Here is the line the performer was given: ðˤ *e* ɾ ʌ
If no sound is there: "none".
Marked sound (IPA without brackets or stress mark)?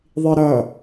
i